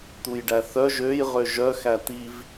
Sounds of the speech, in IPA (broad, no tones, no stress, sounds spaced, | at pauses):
t̪ u j ɖ æ θ œ ʒ ø j ʁ ø ʒ œ x æ t̪ i v